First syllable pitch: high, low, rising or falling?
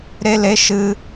high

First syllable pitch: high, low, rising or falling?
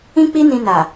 high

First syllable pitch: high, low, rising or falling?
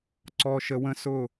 low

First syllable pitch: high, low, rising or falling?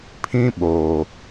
high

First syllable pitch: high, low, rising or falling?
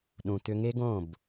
low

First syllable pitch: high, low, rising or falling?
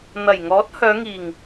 low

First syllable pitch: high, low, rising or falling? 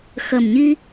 low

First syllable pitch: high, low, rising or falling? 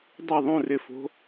falling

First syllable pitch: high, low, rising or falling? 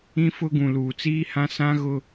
high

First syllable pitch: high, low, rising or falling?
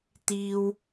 high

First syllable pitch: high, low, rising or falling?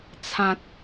low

